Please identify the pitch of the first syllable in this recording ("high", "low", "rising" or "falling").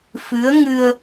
rising